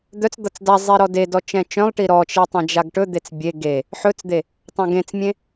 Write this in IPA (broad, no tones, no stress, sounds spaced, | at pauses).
d̪ œ t͡s d̪ ʌ t͡s d a zˤ i ɾ ɔ d e d ɔ t͡ʃ ɛ̃ t͡ʃ œ̃ lˠ ʈ i ɾ ɔ t͡ʃ e tˤ ẽ d͡ʒ a ɡ ʈ ɵ d̪ e t͡s bʲ e ɡ e | ħ ɵ t͡s d̪ e | tˤ œ̃ ɡ ẽ t͡s mʲ ẽ